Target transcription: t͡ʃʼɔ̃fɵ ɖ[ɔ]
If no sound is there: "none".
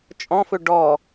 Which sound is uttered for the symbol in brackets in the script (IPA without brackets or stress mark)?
ɔ